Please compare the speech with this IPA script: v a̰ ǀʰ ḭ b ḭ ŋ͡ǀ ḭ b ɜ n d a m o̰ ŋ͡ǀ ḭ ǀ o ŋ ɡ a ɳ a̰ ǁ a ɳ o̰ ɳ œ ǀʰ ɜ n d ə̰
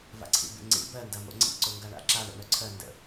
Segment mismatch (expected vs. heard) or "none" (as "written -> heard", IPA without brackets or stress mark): none